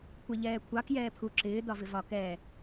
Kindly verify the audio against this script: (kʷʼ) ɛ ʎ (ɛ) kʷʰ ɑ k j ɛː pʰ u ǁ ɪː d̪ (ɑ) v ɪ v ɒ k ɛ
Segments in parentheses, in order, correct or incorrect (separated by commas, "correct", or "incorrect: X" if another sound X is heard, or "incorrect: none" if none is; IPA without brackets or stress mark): incorrect: kʷʰ, incorrect: ɛː, incorrect: ɒ